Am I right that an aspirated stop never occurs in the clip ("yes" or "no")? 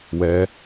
yes